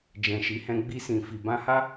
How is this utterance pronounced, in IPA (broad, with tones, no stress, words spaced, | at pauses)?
d͡ʒɛ̃˨ʃi˨˦hɛ̃˧ ɡ͡bi˧sĩ˨fi˨ bã˧ha˦